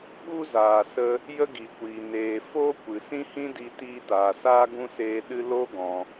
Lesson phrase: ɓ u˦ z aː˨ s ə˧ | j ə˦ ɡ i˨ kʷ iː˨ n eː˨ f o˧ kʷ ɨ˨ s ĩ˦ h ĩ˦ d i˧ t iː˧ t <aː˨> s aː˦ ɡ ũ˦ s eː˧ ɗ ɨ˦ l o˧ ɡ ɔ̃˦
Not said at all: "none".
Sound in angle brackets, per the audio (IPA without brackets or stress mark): aː˨